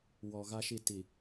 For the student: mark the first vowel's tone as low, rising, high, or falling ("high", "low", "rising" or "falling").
low